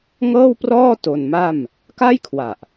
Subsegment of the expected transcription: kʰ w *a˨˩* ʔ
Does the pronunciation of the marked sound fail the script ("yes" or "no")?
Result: no